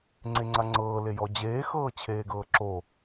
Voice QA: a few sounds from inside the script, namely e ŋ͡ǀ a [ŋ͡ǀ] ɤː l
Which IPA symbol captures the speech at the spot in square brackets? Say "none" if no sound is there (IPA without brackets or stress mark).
ŋ͡ǀ